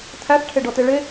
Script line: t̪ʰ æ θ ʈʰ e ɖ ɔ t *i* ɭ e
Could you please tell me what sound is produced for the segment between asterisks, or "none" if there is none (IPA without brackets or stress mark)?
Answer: e